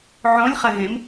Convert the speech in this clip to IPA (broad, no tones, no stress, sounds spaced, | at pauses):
ʕ õ lʲ χ ə ɣ ẽ m